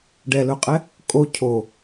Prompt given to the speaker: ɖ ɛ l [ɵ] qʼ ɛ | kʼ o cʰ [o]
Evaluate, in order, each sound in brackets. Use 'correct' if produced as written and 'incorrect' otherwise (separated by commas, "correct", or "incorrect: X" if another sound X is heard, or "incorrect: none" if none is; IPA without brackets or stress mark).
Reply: correct, correct